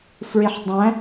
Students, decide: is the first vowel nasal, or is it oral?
oral